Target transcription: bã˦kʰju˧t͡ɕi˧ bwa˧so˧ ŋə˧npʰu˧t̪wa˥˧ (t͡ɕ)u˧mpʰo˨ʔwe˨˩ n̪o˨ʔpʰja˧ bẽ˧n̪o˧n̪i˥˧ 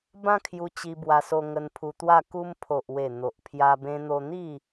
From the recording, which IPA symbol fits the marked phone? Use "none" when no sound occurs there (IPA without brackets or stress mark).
k